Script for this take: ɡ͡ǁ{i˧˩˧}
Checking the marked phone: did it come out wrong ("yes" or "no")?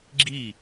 yes